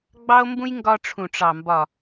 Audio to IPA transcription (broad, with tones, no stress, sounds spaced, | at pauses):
ɡ͡b ɑ˦ o̯ m b ũ˦ j ŋ ɡ ɒ˧ ʈ͡ʂʰ ũ˨ ʈ͡ʂ ɑ˨ m b ɒ˨